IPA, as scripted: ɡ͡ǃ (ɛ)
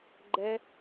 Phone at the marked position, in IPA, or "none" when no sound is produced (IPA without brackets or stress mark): ɛ